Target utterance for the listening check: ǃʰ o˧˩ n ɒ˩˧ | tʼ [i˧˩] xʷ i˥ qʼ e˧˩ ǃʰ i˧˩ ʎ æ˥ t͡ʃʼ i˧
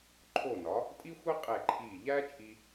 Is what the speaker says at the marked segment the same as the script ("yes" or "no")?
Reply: no